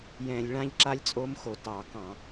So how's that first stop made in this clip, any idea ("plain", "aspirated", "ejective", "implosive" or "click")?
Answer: click